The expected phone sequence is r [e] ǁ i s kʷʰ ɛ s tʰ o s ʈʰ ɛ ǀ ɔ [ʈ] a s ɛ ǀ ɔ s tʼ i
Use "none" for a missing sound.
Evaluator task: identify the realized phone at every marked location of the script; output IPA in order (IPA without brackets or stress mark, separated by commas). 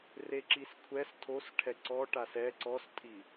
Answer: e, ʈ